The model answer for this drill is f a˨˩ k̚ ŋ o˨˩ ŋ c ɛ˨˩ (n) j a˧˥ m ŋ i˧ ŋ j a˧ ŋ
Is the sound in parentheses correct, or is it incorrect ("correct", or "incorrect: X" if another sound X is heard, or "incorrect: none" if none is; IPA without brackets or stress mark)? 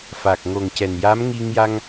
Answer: correct